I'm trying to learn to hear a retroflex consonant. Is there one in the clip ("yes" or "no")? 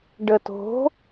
yes